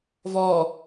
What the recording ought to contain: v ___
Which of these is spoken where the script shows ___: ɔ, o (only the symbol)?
ɔ